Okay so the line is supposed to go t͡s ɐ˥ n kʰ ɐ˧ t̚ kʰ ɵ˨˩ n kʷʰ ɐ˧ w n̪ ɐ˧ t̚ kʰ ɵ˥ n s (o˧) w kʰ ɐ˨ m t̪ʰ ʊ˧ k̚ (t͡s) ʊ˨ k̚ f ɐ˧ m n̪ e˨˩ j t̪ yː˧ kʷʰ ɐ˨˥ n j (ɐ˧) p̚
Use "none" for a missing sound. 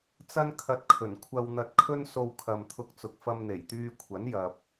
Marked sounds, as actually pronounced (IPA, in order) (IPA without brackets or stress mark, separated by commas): o˧, t͡s, ɐ˨